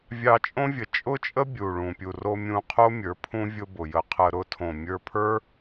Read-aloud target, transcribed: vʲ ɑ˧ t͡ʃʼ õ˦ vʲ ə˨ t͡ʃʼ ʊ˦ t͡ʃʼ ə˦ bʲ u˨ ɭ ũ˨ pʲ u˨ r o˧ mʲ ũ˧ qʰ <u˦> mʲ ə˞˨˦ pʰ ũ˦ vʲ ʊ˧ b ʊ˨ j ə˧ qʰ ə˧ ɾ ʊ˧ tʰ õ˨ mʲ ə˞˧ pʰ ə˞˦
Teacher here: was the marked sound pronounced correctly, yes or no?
no